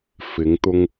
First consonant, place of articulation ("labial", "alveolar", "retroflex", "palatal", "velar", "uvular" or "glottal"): labial